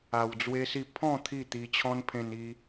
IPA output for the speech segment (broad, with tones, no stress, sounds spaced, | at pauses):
a˧ w d͡z w e˦ s i˥˧ pʰ ɔ̃˥˧ t̪ʰ i˥˧ t̪ i˧ t͡ɕʰ ɔ̃˦ n pʰ ẽ˧ n i˧